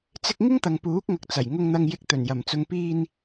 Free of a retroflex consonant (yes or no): yes